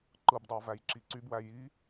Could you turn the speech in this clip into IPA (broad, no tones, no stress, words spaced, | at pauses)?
ǃɯbdˤɑ væjǁiǀybwæ ji